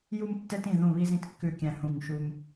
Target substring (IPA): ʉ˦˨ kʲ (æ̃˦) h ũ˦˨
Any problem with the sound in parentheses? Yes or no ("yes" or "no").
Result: yes